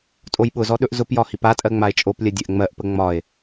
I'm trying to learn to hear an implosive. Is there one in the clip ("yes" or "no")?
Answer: yes